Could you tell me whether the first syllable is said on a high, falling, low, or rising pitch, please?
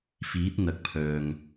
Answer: rising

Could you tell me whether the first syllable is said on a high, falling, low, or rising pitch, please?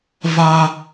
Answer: high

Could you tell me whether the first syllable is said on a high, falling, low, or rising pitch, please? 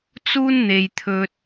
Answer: high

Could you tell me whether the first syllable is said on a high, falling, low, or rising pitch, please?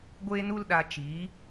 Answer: high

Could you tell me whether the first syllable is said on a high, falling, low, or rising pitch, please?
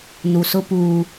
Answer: low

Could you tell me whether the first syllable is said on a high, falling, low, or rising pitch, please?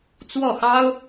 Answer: falling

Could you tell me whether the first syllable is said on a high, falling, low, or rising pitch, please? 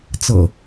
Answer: low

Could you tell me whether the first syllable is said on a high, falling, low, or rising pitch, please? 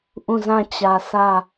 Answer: falling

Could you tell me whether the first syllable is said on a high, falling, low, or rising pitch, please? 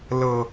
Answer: low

